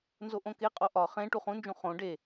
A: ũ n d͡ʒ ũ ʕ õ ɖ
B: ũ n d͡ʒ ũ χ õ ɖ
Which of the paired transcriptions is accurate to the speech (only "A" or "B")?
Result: B